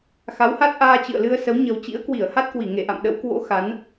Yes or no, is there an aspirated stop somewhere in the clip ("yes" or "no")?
no